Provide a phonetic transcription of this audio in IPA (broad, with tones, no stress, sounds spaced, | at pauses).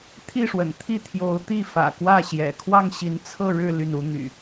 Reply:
t̪ʰ i˥˨ ʂ w ə̰˨˩ n t̪ʰ i˥˨ t̪ʰ j o˨˦ ʊ̯ t̪ i˥˨ f ä̰˨˩ k w ä˥˨ ɕ j ɛ̰˨˩ kʰ w ɑ˥˨ ŋ ɕ i˨˦ n t͡sʰ ɤ˥˨ ɻ ɻ̩˥˨ l y˥˨ n u˦ n̪ y̰˨˩